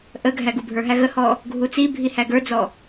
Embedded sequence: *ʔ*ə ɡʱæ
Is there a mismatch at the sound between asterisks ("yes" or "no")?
no